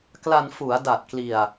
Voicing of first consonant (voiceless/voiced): voiceless